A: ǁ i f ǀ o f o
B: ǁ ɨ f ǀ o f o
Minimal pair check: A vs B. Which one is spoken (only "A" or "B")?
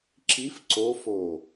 A